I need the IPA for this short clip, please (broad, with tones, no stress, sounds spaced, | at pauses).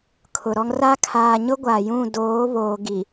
kʰ ʊ˨ ɾ ɔ˦ ŋ r a˦ kʰ aː˨ ɲ ʊ˦ ɡʷ a˨ j ũ˦˨ d oː˨˦ β oː˨ ɡ i˨